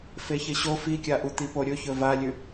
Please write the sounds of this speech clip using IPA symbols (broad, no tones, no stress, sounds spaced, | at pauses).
f e ç e ɕ o f i kʲ a ʔ u t̪ i p o ɾʲ ɵ ç ɵ v a lʲ ʉ